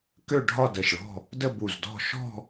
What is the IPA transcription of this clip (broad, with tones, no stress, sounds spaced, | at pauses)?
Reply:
k ø˥˧ ɖʱ ɒ˥˧ d ə˧˩ ʃ ɭ ɔ̤˥˧ | d ə˥˧ b u˧˩ z d ɔ̤˥˧ ʃ ɔ̤˥˧